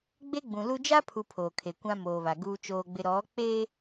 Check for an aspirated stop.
present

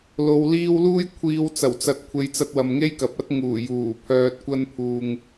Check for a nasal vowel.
absent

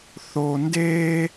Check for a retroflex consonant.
absent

